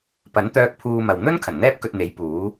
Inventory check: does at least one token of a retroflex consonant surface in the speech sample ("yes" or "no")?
no